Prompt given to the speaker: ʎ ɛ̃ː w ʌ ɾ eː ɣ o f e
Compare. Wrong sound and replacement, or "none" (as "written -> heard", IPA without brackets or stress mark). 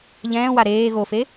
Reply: ʌ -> a